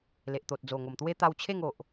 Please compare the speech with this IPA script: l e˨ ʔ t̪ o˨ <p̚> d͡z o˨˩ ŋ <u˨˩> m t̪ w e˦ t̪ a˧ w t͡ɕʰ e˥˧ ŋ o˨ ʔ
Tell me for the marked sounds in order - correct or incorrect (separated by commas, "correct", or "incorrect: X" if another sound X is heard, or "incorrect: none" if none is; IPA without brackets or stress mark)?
incorrect: t̚, incorrect: o˨˩